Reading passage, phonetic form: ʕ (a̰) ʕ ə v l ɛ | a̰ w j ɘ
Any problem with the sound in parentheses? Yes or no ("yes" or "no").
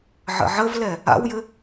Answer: yes